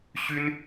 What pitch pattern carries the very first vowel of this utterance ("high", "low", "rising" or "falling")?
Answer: high